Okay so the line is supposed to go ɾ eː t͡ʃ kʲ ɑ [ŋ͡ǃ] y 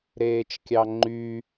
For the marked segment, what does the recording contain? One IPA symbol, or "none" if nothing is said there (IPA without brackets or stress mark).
ŋ͡ǃ